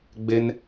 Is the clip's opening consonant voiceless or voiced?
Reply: voiced